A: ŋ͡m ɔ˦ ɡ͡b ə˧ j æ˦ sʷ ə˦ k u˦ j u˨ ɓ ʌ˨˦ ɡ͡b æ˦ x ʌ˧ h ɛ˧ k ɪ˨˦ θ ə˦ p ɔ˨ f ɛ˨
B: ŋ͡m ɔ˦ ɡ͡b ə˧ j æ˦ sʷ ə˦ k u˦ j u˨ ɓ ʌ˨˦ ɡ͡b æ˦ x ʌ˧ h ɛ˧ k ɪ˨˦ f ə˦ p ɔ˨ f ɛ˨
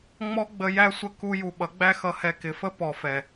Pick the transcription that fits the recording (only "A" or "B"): B